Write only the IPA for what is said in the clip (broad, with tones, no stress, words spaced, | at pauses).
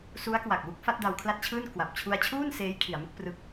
su˦˥a̯kwa˨˩k̚wu˦˥k̚ fa˦˥t̚da˧wkʰla˥˩t̚t͡ɕʰɯː˥˩n kwa˨˩p̚t͡ɕʰu˧a̯t͡ɕʰuː˥˩n seː˦˥jkʰi˩˦a̯mɯ˥˩k̚ prɯ˥˩k̚